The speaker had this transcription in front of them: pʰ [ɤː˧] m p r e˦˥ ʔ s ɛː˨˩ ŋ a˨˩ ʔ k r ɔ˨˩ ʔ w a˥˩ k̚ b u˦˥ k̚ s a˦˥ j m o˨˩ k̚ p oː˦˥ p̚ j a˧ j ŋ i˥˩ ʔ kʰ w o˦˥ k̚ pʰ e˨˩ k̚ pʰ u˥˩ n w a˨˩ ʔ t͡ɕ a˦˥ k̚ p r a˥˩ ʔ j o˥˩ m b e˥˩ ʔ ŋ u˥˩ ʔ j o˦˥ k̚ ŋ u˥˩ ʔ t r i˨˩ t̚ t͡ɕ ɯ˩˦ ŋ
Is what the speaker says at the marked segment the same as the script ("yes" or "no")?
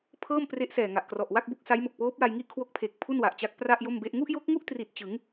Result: no